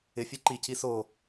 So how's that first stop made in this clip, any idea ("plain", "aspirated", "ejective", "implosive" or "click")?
click